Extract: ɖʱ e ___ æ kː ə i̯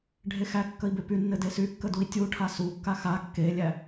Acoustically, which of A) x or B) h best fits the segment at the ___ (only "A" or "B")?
A